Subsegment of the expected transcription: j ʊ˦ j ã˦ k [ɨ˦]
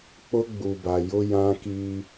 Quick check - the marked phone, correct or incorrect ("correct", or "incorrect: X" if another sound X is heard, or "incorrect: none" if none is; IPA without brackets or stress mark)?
incorrect: i˦